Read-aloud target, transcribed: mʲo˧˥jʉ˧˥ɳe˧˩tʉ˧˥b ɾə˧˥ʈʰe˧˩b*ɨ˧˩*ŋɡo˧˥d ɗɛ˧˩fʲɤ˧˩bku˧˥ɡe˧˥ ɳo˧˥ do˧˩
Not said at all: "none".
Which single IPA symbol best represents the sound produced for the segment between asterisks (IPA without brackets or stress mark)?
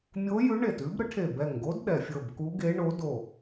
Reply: ɛ˧˩